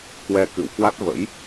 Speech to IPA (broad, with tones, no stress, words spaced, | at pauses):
kwɛ˧kɨ̰˧˨w kwa˦˥t̚və̰˧˥j